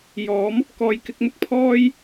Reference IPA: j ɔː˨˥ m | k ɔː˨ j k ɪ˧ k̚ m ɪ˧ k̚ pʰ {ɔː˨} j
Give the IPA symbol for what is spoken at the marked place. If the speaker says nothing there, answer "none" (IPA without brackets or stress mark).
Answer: ɔː˥